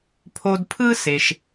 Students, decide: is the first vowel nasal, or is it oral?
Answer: oral